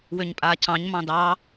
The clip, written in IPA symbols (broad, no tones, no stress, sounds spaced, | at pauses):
w ø ɲ pʼ aː cʰ ɑ̃ ɲ m ɑ̃ d ɑ